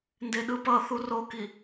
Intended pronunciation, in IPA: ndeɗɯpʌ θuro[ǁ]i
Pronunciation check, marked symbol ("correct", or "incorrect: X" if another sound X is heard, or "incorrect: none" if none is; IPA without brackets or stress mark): incorrect: k